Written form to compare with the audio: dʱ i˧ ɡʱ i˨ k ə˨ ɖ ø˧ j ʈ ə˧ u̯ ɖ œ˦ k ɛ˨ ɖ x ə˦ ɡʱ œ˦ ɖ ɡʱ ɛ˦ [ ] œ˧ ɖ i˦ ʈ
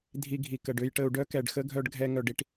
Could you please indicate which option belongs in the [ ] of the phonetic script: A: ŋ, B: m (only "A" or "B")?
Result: A